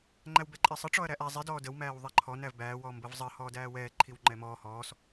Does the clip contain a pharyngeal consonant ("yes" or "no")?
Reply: no